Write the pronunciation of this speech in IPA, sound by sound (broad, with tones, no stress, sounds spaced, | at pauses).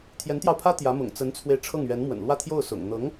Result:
t̪ʰ j ɛ˧˥ n t̪ j ɑ˧ ʊ̯ pʰ ä˥ t̪ j ä˧˥ m ʊ̰˨˩ ŋ t͡s ə˧˥ n t͡sʰ w e˧ ɪ̯ ʈ͡ʂʰ ɤ˥˩ ŋ ɥ ɛ˧˥ n m w ə̰˨˩ n l w ä˥˧ t̪ʰ j o˥˩ ʊ̯ s ʊ̰˨˩ ŋ n̪ ɤ˧˥ ŋ